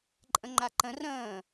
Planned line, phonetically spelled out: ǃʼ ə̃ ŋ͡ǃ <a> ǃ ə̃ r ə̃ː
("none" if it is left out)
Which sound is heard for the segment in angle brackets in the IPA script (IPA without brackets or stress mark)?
a